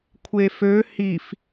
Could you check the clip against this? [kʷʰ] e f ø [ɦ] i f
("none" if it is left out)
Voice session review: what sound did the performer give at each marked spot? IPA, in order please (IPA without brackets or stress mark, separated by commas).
kʷʰ, h